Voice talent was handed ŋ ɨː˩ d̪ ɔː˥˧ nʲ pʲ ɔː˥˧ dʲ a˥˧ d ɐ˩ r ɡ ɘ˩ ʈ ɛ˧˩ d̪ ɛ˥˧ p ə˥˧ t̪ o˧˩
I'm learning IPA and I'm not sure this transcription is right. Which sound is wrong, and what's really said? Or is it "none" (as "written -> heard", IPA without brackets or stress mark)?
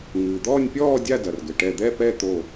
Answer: ə˥˧ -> ɛ˥˧